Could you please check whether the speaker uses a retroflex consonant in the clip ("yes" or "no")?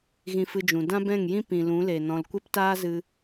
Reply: no